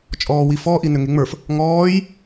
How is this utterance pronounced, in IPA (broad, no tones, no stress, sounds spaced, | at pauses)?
t͡ʃʼ ɔː w i f ɔ ʔ i n ʏ ŋ e ŋ͡m ə˞ f | ŋ ɔː j